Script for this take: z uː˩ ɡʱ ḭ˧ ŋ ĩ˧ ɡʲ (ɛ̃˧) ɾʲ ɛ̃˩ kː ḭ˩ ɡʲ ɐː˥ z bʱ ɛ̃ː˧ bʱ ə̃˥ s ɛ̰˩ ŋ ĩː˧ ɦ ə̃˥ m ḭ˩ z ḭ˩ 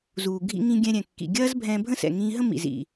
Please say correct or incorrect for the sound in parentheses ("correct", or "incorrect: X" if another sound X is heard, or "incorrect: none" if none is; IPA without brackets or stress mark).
correct